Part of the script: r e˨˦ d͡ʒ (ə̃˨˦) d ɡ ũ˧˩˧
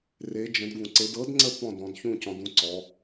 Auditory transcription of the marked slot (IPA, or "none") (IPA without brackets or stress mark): ə̃˨˦